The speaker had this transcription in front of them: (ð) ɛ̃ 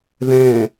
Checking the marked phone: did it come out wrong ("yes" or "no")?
no